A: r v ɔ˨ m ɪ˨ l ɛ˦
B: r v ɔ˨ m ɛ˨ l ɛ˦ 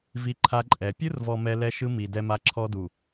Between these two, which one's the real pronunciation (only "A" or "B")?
B